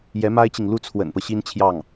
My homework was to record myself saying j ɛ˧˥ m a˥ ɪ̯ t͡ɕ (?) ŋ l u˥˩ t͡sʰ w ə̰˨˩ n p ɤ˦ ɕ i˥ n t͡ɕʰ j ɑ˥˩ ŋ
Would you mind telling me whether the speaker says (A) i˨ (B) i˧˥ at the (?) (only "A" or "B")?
A